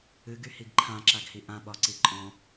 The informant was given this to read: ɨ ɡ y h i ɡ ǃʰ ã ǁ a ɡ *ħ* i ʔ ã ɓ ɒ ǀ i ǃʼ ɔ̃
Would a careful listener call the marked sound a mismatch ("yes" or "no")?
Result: yes